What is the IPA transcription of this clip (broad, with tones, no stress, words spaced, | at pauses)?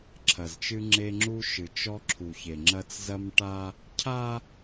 ǁʰɐ˨zt͡ʃɨ˦ŋ͡ǁe˦ŋ͡ǁu˦ ʃɨ˨t͡ʃɔ˦ǁʰu˨çe˨ ŋ͡ǁɐ˦t͡szɐ˦mʈa˦ | cʰa˦